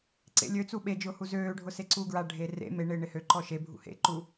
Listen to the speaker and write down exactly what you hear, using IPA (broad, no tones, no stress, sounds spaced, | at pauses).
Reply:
ǀ ḛ lʲ ø t͡s u ɓ e d͡ʒ ʊː h u z øː ɖʱ ʊ s e ǀ uː ɡ ɹ a ɖʱ e r ḛ m e ɳ ɪː ɳ ɪ h ø ǃ ɔ ʃ e bʱ ṵ h ḛ ǃ u